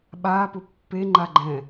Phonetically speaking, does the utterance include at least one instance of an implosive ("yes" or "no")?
yes